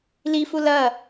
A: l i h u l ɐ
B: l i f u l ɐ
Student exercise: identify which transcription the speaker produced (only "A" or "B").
B